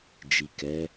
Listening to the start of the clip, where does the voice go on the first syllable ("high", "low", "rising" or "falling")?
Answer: low